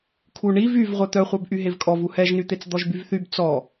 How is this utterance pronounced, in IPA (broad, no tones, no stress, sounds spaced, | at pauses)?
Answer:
kʰ u ɳ i v y v ʁʷ œ t̪ œ χʷ œ b ʔ y ɦ e v kʼ ɔ v u h ɛ ʒ n y t̪ e t͡s d̪ ɔ ʒ b y v θ y b t͡s ɔ